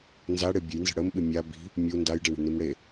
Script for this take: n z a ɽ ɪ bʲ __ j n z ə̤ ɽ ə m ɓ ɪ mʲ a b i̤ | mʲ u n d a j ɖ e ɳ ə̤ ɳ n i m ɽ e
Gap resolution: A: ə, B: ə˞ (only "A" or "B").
A